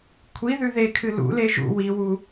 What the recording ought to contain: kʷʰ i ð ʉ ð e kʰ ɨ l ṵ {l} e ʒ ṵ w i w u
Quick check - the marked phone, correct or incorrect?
correct